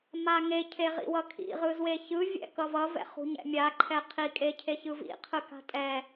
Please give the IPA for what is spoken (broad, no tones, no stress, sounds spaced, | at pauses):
m a ŋ e cʰ e ʁ ḭ w ʌ kʰ ḭ ʁ ɯ z w e ç ɯ vʲ ɛ̰ k ʌ v ʌ v ɛ̰ χ ṳ ɲ ɛ̰ mʲ a ǃʰ ɛ qʰ i kʼ e cʰ e ç ɯ v ḭ qʰ ɯ k a̤ tʼ ɛ